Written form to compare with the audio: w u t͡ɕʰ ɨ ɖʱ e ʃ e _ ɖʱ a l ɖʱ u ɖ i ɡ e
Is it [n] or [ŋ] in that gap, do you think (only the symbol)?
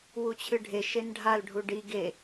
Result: n